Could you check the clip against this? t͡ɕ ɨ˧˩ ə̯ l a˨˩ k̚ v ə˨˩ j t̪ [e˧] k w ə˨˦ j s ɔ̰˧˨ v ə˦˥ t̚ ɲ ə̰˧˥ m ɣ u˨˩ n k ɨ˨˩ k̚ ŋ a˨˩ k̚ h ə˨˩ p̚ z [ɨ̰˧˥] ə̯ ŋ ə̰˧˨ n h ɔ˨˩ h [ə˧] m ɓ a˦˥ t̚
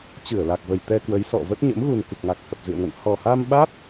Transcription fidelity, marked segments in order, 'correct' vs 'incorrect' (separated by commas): incorrect, incorrect, incorrect